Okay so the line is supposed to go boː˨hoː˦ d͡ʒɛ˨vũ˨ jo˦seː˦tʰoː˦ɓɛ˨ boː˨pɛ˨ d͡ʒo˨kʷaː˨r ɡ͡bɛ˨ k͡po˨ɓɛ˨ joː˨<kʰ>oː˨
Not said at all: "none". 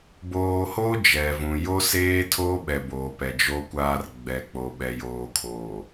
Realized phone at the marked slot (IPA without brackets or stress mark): kʰ